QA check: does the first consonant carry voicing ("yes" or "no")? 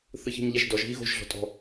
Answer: no